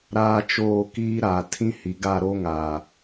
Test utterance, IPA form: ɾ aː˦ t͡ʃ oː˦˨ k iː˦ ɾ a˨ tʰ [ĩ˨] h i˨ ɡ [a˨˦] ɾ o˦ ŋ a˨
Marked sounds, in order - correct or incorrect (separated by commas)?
incorrect, incorrect